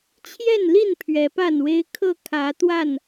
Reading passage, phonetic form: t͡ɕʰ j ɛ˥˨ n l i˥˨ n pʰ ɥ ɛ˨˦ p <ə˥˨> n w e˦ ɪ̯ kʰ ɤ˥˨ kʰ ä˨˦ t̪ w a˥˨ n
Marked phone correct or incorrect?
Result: incorrect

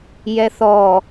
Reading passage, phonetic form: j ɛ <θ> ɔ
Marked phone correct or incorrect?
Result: correct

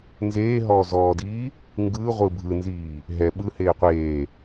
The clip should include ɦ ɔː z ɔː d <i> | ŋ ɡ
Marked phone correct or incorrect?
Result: incorrect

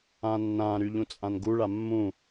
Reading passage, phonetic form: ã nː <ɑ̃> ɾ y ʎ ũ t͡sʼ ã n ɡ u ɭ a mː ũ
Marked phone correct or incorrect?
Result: incorrect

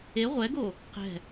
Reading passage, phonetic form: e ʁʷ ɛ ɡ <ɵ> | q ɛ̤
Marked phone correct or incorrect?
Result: incorrect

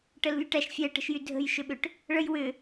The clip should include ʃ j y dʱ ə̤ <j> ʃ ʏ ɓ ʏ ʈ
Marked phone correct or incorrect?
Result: correct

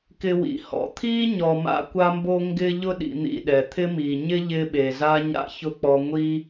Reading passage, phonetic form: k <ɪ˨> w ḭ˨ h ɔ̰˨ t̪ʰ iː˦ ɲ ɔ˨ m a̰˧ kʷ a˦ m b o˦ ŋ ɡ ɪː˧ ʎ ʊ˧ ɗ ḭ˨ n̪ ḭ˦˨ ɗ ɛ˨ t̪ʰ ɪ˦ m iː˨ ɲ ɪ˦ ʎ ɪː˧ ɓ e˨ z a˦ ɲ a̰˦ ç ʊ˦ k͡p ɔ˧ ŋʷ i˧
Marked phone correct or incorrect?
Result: incorrect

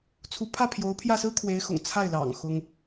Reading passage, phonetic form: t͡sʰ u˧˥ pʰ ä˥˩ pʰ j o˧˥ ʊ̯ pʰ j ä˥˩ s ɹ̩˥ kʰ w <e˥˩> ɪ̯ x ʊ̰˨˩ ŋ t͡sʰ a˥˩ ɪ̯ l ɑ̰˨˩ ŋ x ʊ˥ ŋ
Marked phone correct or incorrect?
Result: incorrect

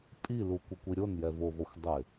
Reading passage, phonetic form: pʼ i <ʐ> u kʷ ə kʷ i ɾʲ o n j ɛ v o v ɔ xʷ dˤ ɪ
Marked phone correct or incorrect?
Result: incorrect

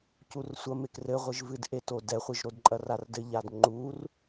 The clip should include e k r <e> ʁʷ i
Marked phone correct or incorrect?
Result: incorrect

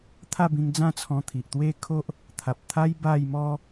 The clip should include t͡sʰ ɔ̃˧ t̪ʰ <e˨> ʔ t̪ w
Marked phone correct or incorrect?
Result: incorrect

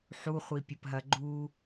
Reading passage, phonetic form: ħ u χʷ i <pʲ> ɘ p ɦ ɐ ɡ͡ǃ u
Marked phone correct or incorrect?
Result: correct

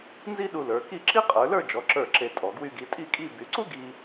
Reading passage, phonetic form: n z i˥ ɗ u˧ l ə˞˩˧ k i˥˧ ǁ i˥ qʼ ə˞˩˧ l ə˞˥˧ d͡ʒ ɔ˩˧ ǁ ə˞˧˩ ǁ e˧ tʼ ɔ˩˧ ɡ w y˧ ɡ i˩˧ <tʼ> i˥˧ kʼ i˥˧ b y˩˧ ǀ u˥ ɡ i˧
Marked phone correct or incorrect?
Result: correct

